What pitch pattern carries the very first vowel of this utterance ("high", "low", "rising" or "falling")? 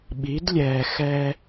rising